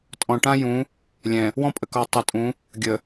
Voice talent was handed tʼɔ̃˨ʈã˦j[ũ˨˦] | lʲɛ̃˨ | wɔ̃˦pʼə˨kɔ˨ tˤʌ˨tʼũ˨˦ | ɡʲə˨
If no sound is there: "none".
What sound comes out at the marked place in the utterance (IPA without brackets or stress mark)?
ũ˨˦